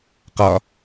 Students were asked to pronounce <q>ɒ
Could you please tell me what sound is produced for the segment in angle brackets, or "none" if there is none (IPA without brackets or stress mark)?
q